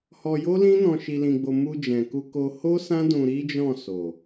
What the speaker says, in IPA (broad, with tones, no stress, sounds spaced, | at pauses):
h ɔ˧ j o˦ l ĩ˦ n ɔ̃˧ ʃ i˧ l ĩ˧ ɡ͡b o˧ m u˧ d͡ʒ ɛ̃˨ k u˧ k o˧ h o˦ s ã˦ d ũ˧ ɾ i˦ d͡ʒ ɔ̃˦˨ s o˨